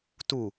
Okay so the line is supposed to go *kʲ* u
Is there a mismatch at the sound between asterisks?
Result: yes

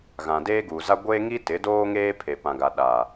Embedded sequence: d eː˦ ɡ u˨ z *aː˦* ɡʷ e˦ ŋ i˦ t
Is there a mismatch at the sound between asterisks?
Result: yes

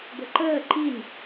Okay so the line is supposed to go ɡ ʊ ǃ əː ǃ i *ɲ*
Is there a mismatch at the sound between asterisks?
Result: yes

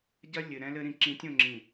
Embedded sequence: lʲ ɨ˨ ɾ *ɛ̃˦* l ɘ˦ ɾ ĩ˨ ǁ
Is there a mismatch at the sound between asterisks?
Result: no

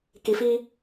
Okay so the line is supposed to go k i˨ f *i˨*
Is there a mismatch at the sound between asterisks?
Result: yes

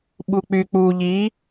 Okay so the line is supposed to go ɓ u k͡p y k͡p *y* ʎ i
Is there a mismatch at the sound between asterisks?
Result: yes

